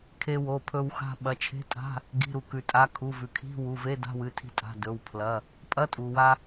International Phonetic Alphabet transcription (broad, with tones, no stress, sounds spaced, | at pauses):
kʰ e˧ w o˩˧˩ pʰ ɵ˧ w x a̤˧ ɓ ɐ˩˧˩ t͡ʃʰ e̤˧˥˧ tʼ a̤˧˥˧ | ɡ i̤˩˧˩ ɾ u˩ k ʉ˩ tʼ a˩˧˩ kʰ u˩˧˩ v ʉ˩ kʰ i̤˧˥˧ w u˩˧˩ v e˧˥˧ d a̤˧˥˧ w ɨ˩˧˩ tʰ i̤˧ tʼ a̤˩˧˩ d ɵ˩˧˩ w pʰ l ɐ˩˧˩ | pʼ ɐ˧˥˧ tʼ u˩ w a˧